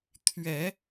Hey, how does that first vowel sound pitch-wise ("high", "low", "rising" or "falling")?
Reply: low